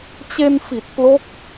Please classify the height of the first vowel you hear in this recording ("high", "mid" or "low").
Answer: mid